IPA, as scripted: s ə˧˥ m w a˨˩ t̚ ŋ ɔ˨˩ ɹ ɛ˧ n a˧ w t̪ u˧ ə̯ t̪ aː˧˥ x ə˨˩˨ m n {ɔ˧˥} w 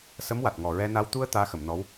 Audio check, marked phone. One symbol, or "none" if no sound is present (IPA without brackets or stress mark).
ɔ˧˥